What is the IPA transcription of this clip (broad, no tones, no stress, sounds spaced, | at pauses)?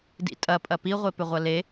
d ḭ tʼ ɐ pʼ ɐ p i ʁʷ e p ʏ ʁʷ ɐ l e